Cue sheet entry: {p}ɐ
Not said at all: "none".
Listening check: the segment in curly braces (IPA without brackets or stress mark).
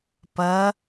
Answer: p